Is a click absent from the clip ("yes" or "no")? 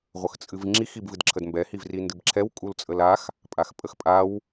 no